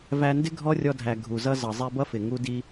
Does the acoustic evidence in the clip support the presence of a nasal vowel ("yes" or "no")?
no